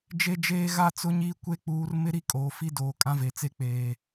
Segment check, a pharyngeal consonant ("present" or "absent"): absent